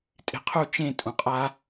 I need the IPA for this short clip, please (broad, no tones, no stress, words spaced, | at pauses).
tʼe̤qʰu t͡ʃẽ tʼũqʼa